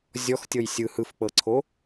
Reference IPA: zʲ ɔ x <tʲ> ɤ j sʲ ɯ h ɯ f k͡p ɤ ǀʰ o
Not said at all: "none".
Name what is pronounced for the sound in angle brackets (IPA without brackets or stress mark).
tʲ